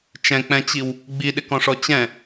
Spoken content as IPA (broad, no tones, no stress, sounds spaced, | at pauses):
t͡ʃ ɛ̃ k͡p ɛ̃ t͡ɕ i w | ɡ͡b i ɗ ɪ k ɔ̃ ʂ ɔ t͡ɕ ɛ̃